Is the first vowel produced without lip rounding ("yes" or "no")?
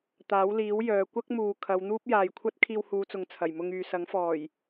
yes